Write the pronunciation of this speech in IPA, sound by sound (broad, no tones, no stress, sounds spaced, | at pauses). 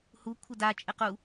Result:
h u kʷʰ ɘ d a t͡ʃʼ ɘ q u